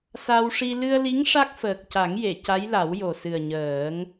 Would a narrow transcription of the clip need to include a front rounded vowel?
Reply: no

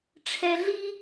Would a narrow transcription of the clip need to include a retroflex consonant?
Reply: yes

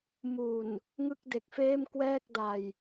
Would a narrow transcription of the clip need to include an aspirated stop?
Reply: no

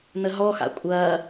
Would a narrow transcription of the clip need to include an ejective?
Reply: yes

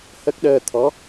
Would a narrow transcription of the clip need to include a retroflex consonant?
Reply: no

